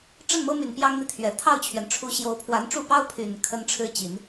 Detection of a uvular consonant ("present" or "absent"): absent